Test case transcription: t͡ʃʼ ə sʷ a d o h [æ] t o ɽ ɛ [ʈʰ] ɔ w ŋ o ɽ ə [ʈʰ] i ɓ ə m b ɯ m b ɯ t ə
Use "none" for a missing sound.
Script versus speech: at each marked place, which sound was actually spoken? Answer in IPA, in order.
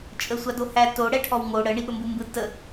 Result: æ, ʈʰ, ɳ

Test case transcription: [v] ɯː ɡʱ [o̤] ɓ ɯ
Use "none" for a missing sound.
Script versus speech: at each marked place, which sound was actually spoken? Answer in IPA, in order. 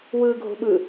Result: w, o̤

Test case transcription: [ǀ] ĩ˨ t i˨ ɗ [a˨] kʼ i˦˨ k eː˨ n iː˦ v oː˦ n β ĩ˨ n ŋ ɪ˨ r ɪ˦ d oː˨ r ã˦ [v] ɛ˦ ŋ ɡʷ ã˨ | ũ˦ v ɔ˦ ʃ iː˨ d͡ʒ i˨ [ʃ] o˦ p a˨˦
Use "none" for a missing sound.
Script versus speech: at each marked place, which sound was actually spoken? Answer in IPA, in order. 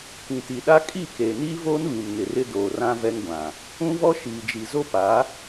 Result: k, a˦, v, z

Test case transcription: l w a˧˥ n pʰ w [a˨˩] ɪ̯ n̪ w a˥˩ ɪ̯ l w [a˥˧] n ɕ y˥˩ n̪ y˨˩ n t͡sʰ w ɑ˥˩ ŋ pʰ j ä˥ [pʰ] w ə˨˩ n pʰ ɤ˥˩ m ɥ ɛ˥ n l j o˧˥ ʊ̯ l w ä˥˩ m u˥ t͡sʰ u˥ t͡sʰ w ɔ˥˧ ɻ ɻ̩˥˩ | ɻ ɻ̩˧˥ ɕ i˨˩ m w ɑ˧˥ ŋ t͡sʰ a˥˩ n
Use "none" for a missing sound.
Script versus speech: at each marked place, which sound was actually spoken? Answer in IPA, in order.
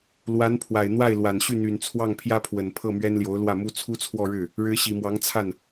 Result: a˨˩, a˨˩, pʰ

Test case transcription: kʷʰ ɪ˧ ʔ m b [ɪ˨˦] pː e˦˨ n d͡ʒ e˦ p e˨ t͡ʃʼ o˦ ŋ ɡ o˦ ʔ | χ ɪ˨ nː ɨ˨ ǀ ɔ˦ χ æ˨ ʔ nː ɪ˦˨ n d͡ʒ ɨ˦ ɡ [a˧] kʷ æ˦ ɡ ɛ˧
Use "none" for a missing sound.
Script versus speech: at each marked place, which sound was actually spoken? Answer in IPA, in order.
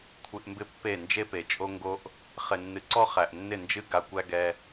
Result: ɪ˦, a˧

